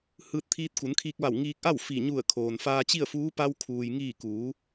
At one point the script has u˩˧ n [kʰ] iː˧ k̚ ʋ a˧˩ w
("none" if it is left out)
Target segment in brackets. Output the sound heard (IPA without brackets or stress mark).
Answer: kʰ